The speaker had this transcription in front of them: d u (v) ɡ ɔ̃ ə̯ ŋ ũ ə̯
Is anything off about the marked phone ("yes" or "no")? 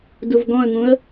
no